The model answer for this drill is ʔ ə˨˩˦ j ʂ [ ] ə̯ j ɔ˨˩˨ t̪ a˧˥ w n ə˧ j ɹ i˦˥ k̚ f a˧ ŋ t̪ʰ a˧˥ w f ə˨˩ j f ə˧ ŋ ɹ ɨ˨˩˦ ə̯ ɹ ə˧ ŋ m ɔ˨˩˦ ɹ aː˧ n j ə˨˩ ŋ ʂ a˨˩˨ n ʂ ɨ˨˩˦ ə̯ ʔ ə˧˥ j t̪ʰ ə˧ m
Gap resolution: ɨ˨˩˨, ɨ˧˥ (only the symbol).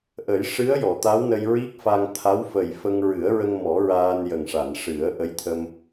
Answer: ɨ˧˥